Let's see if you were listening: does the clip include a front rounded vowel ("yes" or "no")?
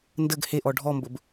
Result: no